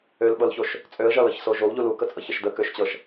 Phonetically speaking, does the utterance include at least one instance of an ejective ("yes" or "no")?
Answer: yes